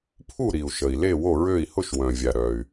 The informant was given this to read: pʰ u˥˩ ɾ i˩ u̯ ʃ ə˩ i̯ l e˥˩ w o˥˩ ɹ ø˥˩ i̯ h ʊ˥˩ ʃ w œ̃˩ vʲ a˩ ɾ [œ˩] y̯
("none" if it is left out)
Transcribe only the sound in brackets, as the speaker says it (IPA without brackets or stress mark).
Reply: œ˩